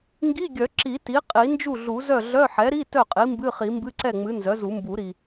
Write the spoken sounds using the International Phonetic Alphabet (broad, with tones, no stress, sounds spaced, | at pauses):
ŋ ɡ i˧˥˧ ɡʲ œ˨˩˦ ǁ i˨˩˦ t i˩˥ qʼ i˨˩˦ n d͡ʒ u˥˩ ɮ u˨˩˦ z œ˥˩ ɮ œ˧˥˧ ħ ɛ˩˥ ɾ i˧˥˧ t œ˥˩ qʼ i˩˥ m b ɨ˧˥˧ χ i˨˩˦ m b ɨ˧˥˧ ǀ ɛ˥˩ ŋ͡m ɨ˩˥ n z œ˩˥ z u˨˩˦ m b u˨˩˦ ɾ i˨˩